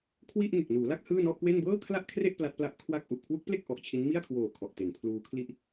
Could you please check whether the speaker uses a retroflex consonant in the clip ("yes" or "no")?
no